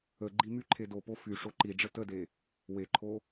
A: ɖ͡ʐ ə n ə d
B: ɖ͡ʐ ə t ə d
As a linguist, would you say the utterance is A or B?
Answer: B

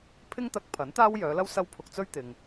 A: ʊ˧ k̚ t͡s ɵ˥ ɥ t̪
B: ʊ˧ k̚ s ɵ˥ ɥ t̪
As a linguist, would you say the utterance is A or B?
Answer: A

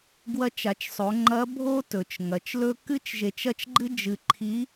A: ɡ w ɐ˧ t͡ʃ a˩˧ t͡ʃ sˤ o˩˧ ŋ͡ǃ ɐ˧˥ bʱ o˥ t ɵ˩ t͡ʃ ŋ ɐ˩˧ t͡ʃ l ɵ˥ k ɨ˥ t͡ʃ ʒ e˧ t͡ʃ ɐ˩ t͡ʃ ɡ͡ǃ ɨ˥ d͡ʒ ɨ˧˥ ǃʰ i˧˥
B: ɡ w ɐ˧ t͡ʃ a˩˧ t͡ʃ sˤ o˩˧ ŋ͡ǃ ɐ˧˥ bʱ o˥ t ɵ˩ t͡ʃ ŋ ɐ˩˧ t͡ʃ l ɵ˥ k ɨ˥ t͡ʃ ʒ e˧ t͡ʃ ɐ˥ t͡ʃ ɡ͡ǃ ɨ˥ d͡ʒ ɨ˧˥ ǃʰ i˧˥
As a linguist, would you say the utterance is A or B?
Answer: B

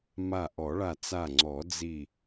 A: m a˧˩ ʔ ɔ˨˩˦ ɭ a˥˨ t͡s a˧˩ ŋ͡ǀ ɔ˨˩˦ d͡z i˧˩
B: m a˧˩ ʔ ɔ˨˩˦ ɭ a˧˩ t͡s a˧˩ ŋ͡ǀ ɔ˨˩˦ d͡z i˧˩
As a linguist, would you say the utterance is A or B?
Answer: B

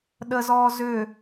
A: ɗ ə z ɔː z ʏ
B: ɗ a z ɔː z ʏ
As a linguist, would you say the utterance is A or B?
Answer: A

